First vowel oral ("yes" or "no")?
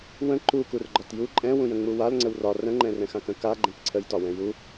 no